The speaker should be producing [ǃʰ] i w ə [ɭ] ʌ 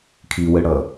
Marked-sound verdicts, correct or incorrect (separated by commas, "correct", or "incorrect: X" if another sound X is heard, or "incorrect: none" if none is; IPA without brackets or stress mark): incorrect: kʰ, incorrect: ɽ